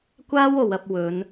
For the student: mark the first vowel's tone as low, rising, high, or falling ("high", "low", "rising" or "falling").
high